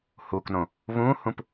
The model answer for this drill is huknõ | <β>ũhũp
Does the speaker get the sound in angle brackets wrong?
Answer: no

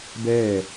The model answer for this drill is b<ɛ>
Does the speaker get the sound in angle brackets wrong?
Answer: yes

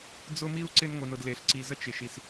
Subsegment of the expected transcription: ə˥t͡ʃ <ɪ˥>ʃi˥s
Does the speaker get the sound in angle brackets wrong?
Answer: no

